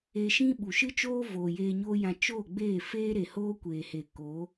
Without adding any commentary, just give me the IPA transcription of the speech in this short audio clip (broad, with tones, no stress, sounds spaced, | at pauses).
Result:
e˧ ʃ ĩ˦ ɓ u˨ ʃ ɨ˦ t͡ʃ oː˦ v o˨ j eː˧ ɲ oː˦ j ã˧ t͡ʃ oː˦˨ ɡ͡b eː˦˨ f eː˦ ɾ e˨ h oː˦ kʷ eː˨ h e˨ k o˨˦